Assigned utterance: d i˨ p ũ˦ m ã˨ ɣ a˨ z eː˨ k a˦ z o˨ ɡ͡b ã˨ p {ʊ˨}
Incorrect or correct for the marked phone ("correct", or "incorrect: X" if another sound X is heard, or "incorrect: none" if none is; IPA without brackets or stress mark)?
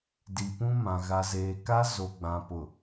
correct